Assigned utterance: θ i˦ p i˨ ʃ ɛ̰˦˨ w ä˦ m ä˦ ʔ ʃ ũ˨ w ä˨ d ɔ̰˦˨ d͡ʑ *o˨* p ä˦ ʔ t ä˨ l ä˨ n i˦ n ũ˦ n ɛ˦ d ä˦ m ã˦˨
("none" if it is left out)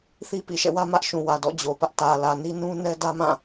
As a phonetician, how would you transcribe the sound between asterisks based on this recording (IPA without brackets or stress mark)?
o˨